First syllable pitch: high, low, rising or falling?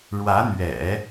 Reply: rising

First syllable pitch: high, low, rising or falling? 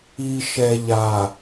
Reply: low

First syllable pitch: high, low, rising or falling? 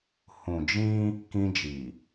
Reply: low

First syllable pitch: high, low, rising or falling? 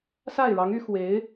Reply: falling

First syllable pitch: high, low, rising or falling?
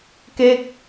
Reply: falling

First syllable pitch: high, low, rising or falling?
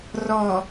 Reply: low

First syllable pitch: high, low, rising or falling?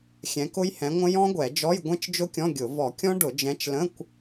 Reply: rising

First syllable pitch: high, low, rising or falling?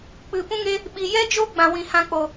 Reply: low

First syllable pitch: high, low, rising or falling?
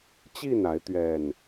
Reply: falling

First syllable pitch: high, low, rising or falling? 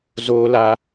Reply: high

